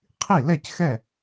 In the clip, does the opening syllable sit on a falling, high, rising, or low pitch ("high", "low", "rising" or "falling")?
falling